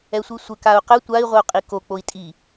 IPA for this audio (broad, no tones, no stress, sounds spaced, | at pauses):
ɛ sʷ i sʷ ɘ k a u̯ q ɘ tʷ a i̯ ʁʷ ɪ u̯ qʼ i k o k͡p o i̯ tʼ i